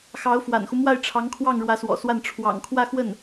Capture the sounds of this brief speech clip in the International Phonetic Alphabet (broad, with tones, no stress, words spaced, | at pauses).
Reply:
xɑ˧˥ʊ̯fwa̰˨˩nxu˦mwa˥˩ɪ̯ ʈ͡ʂʰɑ˧˥ŋkʰwɑ˥˩ŋ ɻwä˧˥swɔ̰˨˩swa˥˩n ʈ͡ʂʰwɑ̰˨˩ŋ kʰwä˥˧xwə˥˩n